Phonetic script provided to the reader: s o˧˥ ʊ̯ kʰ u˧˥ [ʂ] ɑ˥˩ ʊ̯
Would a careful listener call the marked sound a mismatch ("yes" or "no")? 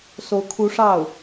no